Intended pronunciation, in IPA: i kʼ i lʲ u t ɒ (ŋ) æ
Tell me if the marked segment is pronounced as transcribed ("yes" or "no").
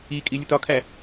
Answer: no